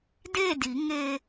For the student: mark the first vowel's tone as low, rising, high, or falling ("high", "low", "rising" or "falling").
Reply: falling